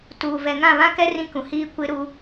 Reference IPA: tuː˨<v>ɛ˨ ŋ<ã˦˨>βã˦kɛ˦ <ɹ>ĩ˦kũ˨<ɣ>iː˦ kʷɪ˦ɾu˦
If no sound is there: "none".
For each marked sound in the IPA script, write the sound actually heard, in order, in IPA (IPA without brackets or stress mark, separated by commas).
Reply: v, ã˦˨, r, h